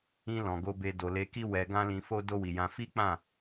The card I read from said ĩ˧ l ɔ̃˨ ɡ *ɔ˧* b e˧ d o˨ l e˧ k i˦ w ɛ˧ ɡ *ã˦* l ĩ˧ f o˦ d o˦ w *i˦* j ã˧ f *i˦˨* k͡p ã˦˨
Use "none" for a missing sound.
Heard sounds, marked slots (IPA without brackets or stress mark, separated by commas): o˧, ã˦, i˧, i˦